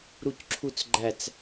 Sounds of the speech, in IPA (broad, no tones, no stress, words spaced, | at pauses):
ɾucǁʰut͡sɡ͡ǃæt͡s